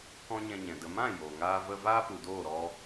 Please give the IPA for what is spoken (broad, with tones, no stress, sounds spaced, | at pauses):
k ɔ̃˦ ɲ ɛ̃˧ ɲ ɛ̃˨ d ə˨ m ã˦˨ j oː˨ ŋ aː˦ v ə˦ v aː˦ p u˨ d oː˦˨ ɾ ɔ˦